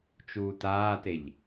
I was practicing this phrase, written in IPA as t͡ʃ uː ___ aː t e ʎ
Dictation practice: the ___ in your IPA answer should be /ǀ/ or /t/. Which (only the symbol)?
t